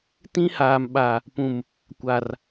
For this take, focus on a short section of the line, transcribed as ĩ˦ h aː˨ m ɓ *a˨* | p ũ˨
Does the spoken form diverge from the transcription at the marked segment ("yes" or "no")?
no